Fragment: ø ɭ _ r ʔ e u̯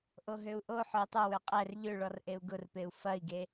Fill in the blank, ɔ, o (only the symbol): ɔ